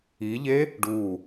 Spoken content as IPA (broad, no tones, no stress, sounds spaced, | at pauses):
i ʎ e | ɖ u